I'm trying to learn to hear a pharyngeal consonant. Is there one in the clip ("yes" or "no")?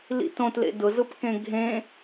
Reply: no